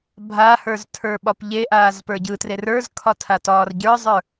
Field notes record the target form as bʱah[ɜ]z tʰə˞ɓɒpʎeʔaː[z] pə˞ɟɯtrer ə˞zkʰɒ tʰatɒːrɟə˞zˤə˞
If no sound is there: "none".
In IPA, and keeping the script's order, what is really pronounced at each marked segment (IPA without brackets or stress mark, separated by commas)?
ə˞, z